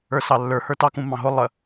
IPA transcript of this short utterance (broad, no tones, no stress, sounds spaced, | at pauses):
ə˞ s ɑ lː ə˞ h ə˞ t ɑ k ũ m ɑ̃ ɦ ʊ lˠ ə